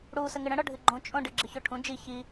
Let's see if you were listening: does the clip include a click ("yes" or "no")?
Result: yes